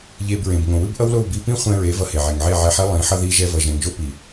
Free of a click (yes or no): yes